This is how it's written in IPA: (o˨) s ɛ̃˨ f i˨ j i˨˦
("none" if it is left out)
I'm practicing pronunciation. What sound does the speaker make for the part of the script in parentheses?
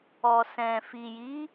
ɔ˨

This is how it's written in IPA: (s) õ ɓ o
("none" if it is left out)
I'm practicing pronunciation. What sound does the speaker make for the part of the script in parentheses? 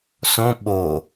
s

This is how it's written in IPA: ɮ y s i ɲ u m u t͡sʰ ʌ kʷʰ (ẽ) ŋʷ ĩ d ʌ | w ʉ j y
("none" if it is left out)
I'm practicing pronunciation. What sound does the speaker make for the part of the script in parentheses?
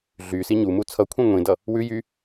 ĩ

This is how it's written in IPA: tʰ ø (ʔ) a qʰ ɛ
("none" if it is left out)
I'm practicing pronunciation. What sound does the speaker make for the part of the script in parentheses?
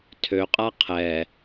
qʼ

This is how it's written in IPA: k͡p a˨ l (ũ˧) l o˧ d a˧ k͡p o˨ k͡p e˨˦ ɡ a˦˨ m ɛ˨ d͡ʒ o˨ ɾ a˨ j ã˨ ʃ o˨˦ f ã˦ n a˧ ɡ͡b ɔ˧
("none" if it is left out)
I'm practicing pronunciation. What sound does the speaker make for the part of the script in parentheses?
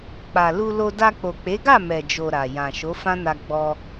u˧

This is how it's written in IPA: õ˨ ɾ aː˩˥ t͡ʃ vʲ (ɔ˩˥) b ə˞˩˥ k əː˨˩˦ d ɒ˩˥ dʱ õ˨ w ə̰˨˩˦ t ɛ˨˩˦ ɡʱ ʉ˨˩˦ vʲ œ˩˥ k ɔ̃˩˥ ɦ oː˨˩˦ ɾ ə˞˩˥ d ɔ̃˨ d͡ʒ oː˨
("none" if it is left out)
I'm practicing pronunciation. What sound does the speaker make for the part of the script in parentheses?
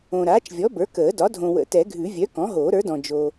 ɔ˩˥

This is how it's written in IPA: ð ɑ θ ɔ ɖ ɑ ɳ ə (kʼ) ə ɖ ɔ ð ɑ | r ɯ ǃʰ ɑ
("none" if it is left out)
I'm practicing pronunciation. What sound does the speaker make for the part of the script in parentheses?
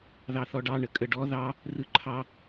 kʼ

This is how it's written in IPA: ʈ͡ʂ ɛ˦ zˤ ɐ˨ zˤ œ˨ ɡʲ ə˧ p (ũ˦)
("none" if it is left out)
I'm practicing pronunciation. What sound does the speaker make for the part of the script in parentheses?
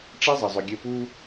u˦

